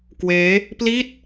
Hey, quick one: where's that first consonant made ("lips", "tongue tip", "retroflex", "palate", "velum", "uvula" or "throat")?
velum